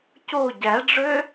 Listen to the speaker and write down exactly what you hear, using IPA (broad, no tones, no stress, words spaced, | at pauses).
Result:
co ɟæɖ͡ʐø